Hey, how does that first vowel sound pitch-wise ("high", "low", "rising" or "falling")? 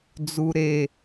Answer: low